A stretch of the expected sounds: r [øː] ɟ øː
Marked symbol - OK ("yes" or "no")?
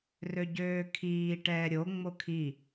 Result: no